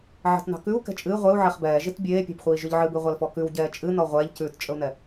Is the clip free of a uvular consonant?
no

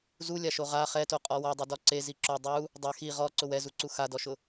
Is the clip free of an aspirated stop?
yes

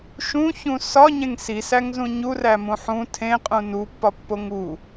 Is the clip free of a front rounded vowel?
yes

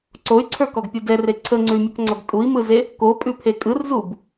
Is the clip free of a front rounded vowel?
no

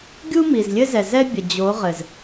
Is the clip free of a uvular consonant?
no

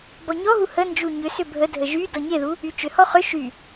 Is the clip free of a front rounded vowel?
no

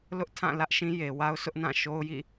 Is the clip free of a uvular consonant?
yes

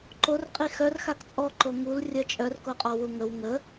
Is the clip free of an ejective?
no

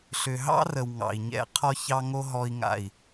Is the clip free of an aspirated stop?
no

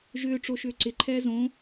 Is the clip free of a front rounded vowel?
no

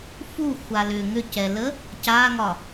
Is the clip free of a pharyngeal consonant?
yes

